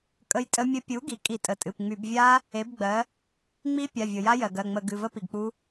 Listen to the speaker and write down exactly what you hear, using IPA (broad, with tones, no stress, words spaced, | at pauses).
kʼə˦˥jtʼə˦˥mʲə˦˥ pʲu˩˥ɡi˩ kʼi˧˩˧tʼə˩˧˩tʼɨ˩˧˩pŋ͡my˧˩˧b vʲa˦˥ | e˩˥bɡ͡bɜ˩˥ | ŋ͡mi˦˥ pʲa˩˧˩vʲɤ˩ja˦˥ jɜ˩ɡɜ˩˧˩ŋ͡mə˧˩˧ɡɨ˩˧˩ və˦˥pi˩ɡk͡pu˦˥